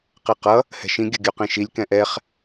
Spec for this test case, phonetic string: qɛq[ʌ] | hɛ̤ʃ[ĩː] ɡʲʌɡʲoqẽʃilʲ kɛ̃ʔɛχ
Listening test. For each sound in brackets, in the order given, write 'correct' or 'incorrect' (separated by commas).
correct, incorrect